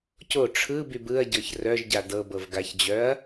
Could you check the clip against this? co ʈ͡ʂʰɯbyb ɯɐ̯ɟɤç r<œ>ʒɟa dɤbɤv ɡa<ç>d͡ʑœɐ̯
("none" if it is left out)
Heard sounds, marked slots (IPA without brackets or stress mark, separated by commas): œ, ç